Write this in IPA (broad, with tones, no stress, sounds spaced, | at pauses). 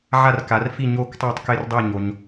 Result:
ʕ a˥˨ r k a˨˦ r f i˥˨ ɲ o˥˨ k tˤ o˥˨ tˤ k ɪ˥˨ r dˤ ɪ˥˨ ɲ o˨˦ ɲ